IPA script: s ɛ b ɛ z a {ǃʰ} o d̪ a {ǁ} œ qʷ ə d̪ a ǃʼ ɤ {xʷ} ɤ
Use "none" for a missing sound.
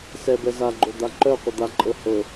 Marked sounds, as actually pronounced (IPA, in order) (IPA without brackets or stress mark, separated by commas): ɡ͡ǃ, ǃ, h